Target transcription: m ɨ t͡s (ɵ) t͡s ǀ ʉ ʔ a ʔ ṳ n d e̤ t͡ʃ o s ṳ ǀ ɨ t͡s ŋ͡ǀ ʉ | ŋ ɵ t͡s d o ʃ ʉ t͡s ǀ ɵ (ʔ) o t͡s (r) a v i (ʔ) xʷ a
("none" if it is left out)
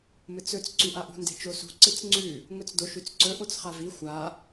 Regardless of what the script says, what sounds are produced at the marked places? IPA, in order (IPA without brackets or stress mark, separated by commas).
ɵ, ʔ, χ, none